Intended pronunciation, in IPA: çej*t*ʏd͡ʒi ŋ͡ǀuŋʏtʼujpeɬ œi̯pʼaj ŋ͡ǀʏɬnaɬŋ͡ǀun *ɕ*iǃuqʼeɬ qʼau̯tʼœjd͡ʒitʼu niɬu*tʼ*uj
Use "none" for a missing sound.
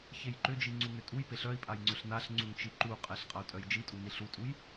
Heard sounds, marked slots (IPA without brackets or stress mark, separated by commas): ǃ, t͡ʃ, tʼ